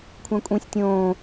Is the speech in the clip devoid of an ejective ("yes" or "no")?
no